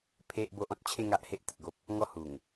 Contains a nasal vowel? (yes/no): yes